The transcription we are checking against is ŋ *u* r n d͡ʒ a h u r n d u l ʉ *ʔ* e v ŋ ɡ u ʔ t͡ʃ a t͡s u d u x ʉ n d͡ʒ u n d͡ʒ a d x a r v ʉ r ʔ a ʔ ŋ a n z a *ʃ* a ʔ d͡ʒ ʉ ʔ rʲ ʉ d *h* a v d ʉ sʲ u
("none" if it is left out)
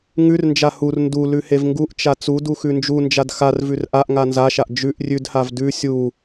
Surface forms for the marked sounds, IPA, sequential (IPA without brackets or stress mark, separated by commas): ʉ, h, ʃ, h